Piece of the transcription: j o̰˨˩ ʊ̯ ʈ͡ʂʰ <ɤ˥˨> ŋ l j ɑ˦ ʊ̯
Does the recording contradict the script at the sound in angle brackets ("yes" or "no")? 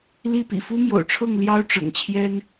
no